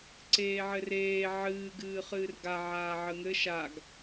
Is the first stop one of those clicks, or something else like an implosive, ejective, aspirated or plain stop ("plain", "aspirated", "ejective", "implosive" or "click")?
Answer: click